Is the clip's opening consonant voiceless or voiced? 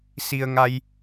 voiceless